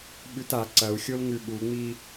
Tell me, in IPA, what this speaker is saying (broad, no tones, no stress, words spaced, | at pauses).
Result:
ɓʉta ǀɐu̯xʲolŋʉ ɓuŋ͡mi